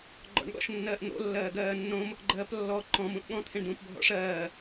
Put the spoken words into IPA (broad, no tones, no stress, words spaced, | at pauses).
ɡ͡ǃɔ̰ɳɠɔ̰ʃnːɜːʔn̪o̰ lːɜːɡɜːnːõm | ɡ͡ǃɜːplːɔ ǃɔ̃ mũʔɠɔ̃ t̪ʰẽɳdũːpbʱɔ̰ʂɜː